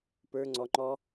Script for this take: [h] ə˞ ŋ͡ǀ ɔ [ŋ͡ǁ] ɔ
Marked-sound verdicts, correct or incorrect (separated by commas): incorrect, incorrect